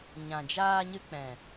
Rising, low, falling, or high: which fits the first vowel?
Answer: low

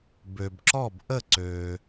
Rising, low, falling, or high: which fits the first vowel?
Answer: low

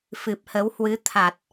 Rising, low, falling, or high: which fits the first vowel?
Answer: low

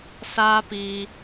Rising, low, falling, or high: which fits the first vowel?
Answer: high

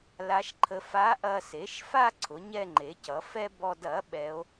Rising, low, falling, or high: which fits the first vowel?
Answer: rising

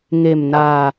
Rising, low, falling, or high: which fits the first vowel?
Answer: low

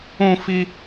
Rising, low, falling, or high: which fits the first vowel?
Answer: high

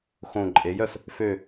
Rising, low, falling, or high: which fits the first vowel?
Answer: falling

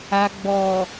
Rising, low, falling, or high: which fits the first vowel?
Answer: low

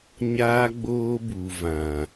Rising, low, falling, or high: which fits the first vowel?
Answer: high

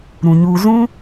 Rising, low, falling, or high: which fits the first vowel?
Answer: low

